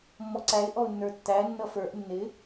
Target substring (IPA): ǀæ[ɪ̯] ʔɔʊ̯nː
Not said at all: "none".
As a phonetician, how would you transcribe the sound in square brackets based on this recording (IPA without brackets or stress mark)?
ɪ̯